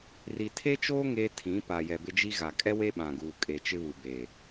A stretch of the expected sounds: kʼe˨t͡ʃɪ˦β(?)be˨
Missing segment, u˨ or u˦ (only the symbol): u˨